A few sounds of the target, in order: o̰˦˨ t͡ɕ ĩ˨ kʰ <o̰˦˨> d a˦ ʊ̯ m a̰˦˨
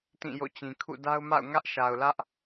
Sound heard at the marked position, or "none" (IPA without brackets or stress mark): ṵ˦˨